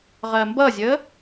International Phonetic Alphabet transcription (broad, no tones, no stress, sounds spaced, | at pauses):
ʁ ɜ m b ʌ zʲ əː